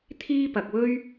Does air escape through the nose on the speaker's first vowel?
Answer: no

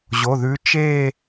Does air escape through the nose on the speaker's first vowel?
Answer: no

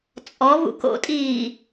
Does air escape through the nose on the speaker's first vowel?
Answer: no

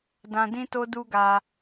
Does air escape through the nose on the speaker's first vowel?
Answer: yes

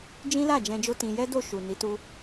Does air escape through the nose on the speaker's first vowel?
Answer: yes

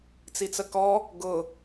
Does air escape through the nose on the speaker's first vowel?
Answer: no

